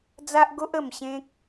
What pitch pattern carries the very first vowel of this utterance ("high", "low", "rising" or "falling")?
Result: high